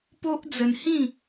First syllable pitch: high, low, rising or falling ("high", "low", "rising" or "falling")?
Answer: high